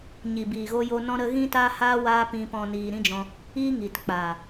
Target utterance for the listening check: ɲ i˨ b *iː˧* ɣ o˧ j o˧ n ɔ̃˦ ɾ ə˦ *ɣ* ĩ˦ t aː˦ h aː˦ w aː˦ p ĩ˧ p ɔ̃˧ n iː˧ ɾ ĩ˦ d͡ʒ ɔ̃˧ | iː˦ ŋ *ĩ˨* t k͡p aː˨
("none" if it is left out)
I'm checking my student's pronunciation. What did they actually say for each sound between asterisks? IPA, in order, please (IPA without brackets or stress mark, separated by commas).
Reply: iː˨, ɣ, i˨